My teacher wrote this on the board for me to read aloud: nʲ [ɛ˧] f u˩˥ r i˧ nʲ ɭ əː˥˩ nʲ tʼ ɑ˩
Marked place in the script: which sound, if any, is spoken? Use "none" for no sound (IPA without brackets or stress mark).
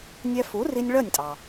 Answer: ɛ˧